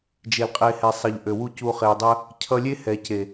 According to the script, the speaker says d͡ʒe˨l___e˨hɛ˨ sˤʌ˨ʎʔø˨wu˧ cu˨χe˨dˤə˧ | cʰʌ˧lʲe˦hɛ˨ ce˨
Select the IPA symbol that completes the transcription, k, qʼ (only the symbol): qʼ